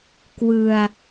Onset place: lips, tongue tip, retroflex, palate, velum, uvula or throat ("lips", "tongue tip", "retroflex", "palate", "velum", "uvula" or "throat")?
velum